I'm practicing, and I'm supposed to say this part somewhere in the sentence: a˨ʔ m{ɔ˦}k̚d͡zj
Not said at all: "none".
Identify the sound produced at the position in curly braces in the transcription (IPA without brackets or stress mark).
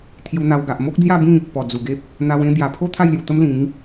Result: o˦